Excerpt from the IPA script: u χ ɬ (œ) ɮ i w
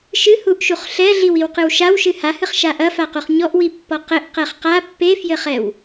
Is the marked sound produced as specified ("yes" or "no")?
no